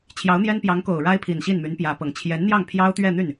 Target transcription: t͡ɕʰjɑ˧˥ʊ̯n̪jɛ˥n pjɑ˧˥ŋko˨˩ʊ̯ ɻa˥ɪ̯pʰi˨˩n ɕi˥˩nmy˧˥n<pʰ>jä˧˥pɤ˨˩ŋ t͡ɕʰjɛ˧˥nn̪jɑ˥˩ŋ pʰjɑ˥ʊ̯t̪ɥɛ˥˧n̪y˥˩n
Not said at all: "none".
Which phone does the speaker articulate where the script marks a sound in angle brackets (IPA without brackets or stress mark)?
p